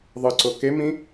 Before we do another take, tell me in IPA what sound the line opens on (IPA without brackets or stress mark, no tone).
ðˤ